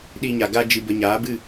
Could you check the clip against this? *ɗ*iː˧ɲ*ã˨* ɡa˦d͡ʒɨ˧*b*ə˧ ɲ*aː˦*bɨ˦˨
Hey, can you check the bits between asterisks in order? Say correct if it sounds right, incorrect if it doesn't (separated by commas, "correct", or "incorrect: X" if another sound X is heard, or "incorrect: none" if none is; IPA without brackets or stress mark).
correct, incorrect: a˨, correct, incorrect: aː˨˦